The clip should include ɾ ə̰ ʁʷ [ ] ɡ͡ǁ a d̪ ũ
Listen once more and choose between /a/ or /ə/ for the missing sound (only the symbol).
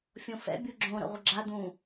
ə